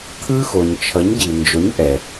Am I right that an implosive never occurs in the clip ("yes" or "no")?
yes